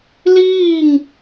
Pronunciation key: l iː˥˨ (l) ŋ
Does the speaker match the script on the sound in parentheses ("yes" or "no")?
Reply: no